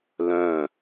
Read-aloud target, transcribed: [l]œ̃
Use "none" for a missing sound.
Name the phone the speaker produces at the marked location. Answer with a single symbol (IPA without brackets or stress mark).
l